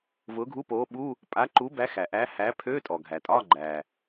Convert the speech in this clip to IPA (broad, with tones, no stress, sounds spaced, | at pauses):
v ʊː˨˥ ɡʱ u˧˥˧ p oː˨˥ ɓ u˧˥˧ | pʼ a˨˥ ǃ u˨˥ b æ˨˥ x æ˩ ʔ æ˨˥ h æ˨˥ pʰ ø˧˥˧ tʼ ɔ˩ ɡʱ æ˩ tʼ ɒː˧˥˧ ɡ͡ǃ æː˩